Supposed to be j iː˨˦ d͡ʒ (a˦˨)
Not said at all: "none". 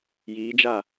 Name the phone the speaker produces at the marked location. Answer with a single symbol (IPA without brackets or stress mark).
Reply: a˦˨